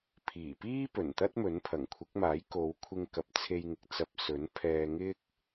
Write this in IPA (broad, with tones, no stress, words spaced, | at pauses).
pʰiː˨˩piː˥pɵ˨˩n t̪ɐ˥t̚mɵ˨˥npʰɐ˨˩ŋkʷʰɪ˨˥k̚ maː˨˥jko˨˧wkʷʰɪ˧ŋ kɐ˨˥p̚t͡sʰe˧j ŋɪ˨k̚ t͡sɐ˧p̚sɵ˨˥n pʰɛː˧ ŋɪ˥k̚